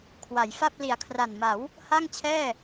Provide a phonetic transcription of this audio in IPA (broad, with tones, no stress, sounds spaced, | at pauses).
kʰ w a˩˦ j f a˥˩ p̚ l i˨˩ a̯ kʰ r a˨˩ n m a˩˦ w | h a˥˩ ŋ t͡ɕʰ ɛː˥˩